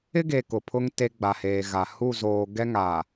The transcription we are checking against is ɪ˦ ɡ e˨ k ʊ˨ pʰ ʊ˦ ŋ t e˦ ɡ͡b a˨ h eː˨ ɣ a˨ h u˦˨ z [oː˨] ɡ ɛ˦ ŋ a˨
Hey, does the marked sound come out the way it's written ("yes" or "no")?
yes